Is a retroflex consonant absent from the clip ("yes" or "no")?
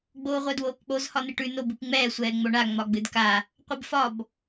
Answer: no